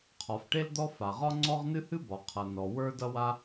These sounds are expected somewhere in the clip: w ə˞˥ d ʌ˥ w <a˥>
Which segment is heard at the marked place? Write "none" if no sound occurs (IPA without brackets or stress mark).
a˥